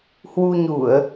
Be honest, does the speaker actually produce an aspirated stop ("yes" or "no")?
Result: no